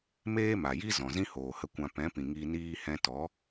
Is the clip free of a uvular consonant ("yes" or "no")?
yes